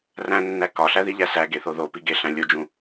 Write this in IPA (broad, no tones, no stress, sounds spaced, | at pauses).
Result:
r æ̃ nː æ k ɒ ɬ æ ð i ʎ æ s æ ɡ e θ o ð o p i ɡ e ɬ æ̃ lʲ o d͡ʒ ũ